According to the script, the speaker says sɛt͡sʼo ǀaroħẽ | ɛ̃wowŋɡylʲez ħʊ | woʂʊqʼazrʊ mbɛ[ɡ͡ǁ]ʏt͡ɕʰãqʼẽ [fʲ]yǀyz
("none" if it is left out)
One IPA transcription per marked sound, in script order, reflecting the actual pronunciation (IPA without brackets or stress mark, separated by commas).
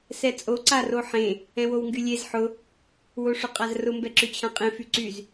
ǁ, f